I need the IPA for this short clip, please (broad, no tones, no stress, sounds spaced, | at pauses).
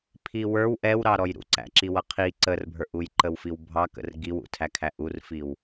pʰ i w ə˞ w ʔ ɛ w ɾ ɑ ɾ ɔ j ɾ ṵ ǀ æ̰ ǁ i w ʌ qʰ i ǀ ə r bʱ ə˞ ʔ u j ǃ ə w f i w bʱ ɑ k ə̰ r ɡ i w ṵ tʰ æ kʰ æ ʔ u r f i w